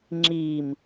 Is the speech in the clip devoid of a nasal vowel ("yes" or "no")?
yes